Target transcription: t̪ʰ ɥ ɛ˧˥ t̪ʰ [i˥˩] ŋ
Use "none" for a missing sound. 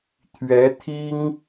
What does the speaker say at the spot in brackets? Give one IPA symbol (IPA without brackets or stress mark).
i˥